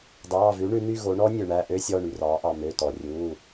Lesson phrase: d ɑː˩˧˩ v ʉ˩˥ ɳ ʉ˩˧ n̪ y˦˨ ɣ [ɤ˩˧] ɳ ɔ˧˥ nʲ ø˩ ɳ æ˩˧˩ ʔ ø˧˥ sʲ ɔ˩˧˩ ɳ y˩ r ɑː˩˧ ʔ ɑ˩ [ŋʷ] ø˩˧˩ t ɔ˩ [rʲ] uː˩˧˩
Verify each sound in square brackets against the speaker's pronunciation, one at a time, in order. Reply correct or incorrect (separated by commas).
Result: incorrect, incorrect, correct